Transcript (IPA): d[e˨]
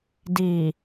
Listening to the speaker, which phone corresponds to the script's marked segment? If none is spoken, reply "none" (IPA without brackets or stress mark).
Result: i˨